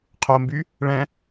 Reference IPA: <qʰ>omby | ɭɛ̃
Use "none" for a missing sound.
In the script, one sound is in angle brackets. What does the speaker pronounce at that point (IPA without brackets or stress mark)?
qʰ